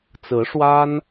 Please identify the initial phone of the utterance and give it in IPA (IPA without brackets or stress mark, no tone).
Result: t͡s